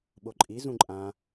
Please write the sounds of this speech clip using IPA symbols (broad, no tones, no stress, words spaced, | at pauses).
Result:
ɓoǃʼi zũǃʼã